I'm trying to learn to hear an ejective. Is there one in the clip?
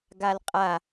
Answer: yes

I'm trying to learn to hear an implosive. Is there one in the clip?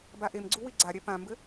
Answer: no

